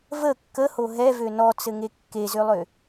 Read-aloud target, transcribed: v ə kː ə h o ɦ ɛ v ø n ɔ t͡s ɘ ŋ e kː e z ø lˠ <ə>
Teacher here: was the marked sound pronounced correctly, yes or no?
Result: no